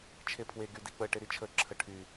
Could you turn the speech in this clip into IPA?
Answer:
t͡ʃʰ e pʰ w e ɡ y d i k͡p ə ʈ e ɾ i t͡ʃʰ ə ǁʰ ə ʈʰ y

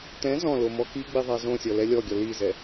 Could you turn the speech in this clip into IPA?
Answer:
t ɛ̃ z ɔ̃ l o m ɔ k i ɡ͡b i ðˤ a z õ sʲ ɔ l ɛ lʲ ɔ ɡʲ ɔ l i z ɛ

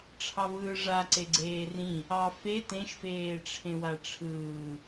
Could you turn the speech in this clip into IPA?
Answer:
ʈ͡ʂʰ ɑ v ɯː ʐ a ǀ e ɡ͡ǀ eː r ĩ | ɑ f e t ẽ ʃ f eː ʈ͡ʂʰ ẽ w a ʈ͡ʂʰ ɯː

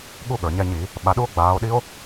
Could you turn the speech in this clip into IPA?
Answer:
ɠ u˥˨ ɠ ə˞˩ ɲ ɛ˥˨ ɲ i˧˩˧ | ɓ a˨˦ ɗ u˦˥ o̯ ɡ͡b aː˨˦ o̯ ɗ i˦˥ o̯

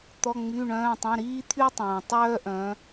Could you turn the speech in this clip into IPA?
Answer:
t̪ ɔ˩˧˩ ŋ͡m y˩˧˩ ɳ œ̃ː˩˧˩ tˤ œ̃˩˧˩ ɾ iː˦ t̪ʰ y˦ tˤ õː˩ tˤ œː˦ ʔ œ̃ː˩˧

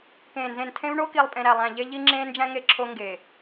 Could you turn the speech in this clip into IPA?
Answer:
k ẽː˨ n z ẽ˨ n tʰ ẽ˦ v ɳ o˦ k i˨ lˠ pʼ ẽ˨ ɾ æ˨ lˠ æ̃˨ ʎ e˦ ʎ i˦ ŋ͡ǁ ẽː˦ n d͡ʒ æ̃˦ ŋ e˦˨ ǁʰ o˦ ŋ ɡ e˨

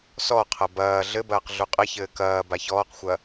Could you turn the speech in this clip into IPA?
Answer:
s ɔ qʰ ɐ b ɐː ɮ ɘ b ɐː q ɮ u qʼ ɘ ç ɘː k ɐː b a ç ɔː q xʷ ɐ

